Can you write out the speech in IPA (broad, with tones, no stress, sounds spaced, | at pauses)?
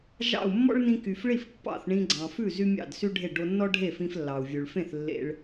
ʒ ɑ̰˥˩ u̯ mː ɔ̰˥ ɭ n ĩ˧ k y˩ f ɭ i˥˩ f pː ɑ̰˥˩ θ ɳ ĩ˧ ɡ͡ǀ ɑ̃˩ f ʉ˥˩ z y˥ mʲ ɑ̰˥˩ d s y˥ ɖʱ e˥˩ ɖ o˧ nː ɔ˥ ɖʱ e˥˩ f ĩ˧ f lː ɑ˩ u̯ vʲ ʉ˩ ɭ f ẽ˥˩ θ lː ḛ˧ ɭ